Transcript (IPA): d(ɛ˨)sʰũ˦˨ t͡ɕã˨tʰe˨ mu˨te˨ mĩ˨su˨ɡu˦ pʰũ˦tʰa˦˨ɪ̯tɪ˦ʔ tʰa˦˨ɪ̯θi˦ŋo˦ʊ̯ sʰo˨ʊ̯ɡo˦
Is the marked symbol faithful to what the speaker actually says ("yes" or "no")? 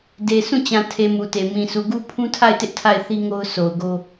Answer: no